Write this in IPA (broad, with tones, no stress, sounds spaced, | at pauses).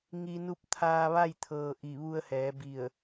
ŋ i˧ n u˥˨ p̚ t̪ʰ aː˧ ʋ a˥˨ j t̪ʰ ɤː˩ ʔ i˧˩ ʋ u˧ ə̯ h ɛː˩˧ b i˧˩ ə̯